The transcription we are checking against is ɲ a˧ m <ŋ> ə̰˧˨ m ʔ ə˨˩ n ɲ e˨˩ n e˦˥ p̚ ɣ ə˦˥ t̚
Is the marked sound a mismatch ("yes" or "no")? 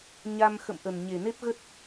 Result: yes